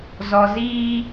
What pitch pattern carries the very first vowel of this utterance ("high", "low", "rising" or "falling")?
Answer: high